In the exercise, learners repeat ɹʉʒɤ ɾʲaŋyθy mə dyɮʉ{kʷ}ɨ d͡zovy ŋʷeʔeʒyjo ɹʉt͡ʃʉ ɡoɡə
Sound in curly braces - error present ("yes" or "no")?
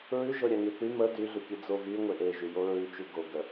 yes